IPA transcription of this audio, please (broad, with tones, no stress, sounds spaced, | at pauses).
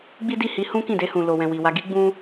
ɡ͡b i˦ d i˦˨ h i˧ h ũ˦ k ĩ˦˨ d e˧ h ũ˨ l o˨ w ɛ̃˨ w i˨ w a˧ ɡ i˦ ɡ͡b ũ˦